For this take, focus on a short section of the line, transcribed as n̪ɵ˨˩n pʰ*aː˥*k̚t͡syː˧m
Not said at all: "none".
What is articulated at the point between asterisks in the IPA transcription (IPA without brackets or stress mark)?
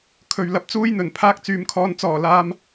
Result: aː˥